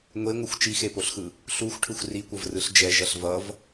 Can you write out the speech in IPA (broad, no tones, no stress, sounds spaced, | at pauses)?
ŋʷ e ŋʷ ɯ xʷ t͡ʃ i x e p o ɬ x ɯ | ɬ u xʷ ʈʰ ɯ xʷ r i kʷ ʌ v r ɯ ɬ d͡ʒ ɛ ʒ ʌ ɬ v ʌ v